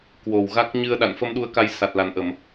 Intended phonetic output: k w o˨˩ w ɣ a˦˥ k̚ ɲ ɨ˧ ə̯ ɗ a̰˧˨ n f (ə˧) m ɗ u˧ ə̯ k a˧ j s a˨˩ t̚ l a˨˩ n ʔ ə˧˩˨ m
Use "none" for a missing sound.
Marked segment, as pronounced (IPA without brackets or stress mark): ə˧